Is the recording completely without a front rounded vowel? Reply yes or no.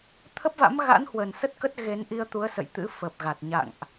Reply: yes